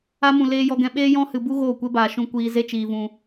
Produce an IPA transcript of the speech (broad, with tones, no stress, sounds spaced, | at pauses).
a˧ m ũ˨ l eː˧ j ɔ˧ ɡ ɛ̃˧ ɓ eː˦ j ɔ̃˦ h ɨ˧ b u˦ ɣ oː˦˨ kʷ e˦ b aː˧ ʃ ũ˧ kʷ iː˧ z e˦ t͡ʃ iː˧ v ũ˧